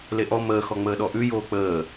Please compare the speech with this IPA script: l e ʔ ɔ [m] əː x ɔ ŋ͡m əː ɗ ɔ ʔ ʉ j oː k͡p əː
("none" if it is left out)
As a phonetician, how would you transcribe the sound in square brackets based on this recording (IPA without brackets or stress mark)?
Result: m